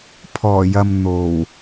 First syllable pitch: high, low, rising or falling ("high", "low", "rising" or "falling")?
low